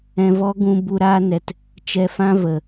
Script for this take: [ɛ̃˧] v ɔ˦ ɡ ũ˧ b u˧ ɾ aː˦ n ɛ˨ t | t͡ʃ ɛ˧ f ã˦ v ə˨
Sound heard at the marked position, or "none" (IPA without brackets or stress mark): ɛ̃˧